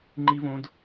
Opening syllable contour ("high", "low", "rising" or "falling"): high